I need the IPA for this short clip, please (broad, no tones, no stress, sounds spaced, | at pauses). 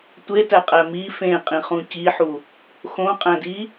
tʷ e t æ qʼ æ m i f ẽ qʼ ĩ χ ũ c i ħ u | x õ qʼ æ̃ d i